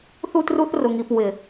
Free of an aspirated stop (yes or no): yes